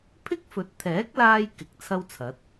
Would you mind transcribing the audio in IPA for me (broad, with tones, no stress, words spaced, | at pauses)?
pʰɪ˥k̚fɵ˨˥t̚t̪ʰɛː˨˥k̚laː˧j kɪ˨˥k̚t͡sʰɐ˥wt͡sʰɐ˨˥t̚